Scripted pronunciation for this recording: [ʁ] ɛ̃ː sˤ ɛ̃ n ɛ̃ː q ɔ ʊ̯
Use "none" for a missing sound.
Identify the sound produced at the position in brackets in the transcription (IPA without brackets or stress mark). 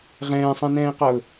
ʁ